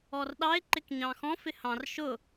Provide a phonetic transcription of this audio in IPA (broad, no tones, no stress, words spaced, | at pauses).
ɔrɗɑɪ̯ ǃɪkɲɑ̃xɔ̃ fɪhɑ̃r ʃʊ